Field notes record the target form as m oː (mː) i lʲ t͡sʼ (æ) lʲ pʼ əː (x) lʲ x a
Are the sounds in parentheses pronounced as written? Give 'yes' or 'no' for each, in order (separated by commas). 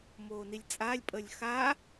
no, no, no